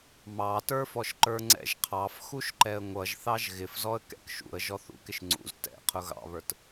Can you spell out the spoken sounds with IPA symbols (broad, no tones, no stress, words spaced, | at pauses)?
mɑtə˞fɔʃǃə˞ ŋ͡ǀɛ̰ʒqʰɑf xuʃǃɛə̯ŋʷʌʒθɑʒ ɣɪfzɔə̯ kɛ̰kʃṵə̯ ʒɔθṵkɪʃ ŋ͡ǀṵz tɛ̰qʰʊ ɣɑ̰βə˞t